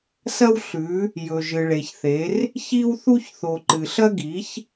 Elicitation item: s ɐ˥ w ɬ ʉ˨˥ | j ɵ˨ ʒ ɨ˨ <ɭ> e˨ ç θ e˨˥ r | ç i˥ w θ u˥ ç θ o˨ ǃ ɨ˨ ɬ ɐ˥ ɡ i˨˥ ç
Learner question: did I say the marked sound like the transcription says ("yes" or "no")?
yes